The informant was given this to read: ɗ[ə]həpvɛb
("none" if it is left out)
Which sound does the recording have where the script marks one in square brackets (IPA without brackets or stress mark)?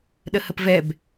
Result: ə